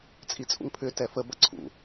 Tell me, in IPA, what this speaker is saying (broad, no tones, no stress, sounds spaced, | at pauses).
t͡sʼ i t͡sʼ ṵ ŋ pʰ ʏ t ɛ f ə b ɐ ǀʰ ṵ